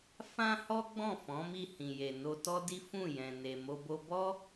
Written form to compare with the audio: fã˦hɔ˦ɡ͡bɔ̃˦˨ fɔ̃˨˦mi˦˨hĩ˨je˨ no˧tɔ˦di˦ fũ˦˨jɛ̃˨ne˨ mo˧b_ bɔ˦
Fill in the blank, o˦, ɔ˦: o˦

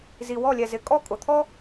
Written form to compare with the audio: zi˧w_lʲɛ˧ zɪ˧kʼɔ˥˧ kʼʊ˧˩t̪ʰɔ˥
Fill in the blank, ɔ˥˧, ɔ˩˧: ɔ˥˧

